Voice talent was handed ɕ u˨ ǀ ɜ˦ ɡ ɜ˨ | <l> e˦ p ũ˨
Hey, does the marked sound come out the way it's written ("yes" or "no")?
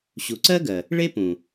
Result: no